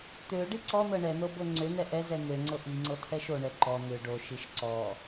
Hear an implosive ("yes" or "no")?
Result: no